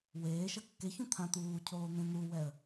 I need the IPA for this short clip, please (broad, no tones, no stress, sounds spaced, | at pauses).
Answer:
w eː ʃ ʌ kː e ç ũ t̪ʰ ã t̪ uː cʰ oː n̪ ẽ n̪ u w ɛ ə̯